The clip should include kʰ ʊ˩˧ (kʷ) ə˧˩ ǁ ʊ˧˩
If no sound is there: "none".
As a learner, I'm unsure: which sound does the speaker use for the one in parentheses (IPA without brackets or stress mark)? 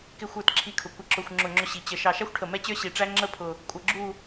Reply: kʷ